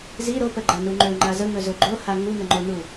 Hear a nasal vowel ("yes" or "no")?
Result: no